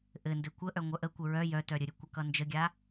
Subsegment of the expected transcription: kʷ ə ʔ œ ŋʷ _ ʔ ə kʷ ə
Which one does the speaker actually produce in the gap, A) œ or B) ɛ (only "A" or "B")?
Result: A